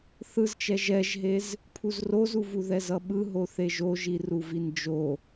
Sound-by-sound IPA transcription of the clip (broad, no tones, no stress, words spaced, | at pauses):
θɯzt͡ʃɛ ʒɛʒɦez | pʰuzrozuvu ðɛzʌɓɯ ɦoθeʒoʒi ruvind͡ʒo